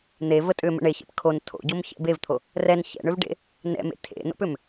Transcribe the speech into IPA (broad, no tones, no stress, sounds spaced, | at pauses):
n̪ e v ə tʼ ʏ m ə̰ ɳ e ç ɛ̰ p kʰ o n tʰ o̰ ɟ o m ç ɛ̰ b e v t̪ʰ o | r ɛ n ç ɛ̰ ɳ ʏ v ɖ ḛ | n ɛ̰ m ḛ tʰ ḛ n o̰ p ʏ m